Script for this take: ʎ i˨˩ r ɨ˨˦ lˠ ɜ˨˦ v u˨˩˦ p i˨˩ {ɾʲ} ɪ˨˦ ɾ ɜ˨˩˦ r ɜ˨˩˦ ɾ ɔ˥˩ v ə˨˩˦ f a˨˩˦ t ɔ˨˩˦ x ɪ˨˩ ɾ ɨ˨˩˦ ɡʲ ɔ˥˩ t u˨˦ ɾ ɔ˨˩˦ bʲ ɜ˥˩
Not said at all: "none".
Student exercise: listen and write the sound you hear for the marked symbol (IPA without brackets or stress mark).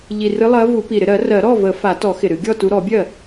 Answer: ɾ